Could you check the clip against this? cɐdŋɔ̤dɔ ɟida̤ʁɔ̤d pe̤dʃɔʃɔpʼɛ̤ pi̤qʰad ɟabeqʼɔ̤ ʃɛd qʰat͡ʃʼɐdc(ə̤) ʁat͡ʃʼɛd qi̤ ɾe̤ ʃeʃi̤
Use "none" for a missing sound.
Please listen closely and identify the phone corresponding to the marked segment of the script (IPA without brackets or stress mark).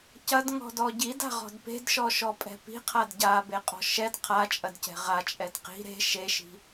ɛ̤